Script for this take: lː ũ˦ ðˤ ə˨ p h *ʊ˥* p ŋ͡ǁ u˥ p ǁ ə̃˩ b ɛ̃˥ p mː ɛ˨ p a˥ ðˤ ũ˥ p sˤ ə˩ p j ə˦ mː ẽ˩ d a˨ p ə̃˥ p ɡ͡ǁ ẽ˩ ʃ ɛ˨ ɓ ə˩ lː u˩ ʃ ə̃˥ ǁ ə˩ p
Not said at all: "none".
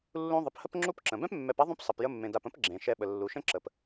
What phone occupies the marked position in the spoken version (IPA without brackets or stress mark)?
ə˥